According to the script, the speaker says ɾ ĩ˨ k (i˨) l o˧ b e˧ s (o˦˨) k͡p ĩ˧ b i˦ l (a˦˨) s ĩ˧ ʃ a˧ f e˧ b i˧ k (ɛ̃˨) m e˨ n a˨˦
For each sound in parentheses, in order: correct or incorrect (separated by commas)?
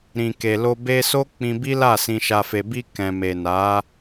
incorrect, incorrect, correct, correct